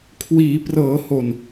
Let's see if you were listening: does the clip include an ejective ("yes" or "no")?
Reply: no